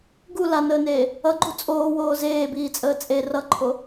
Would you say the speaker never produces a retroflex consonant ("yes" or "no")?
yes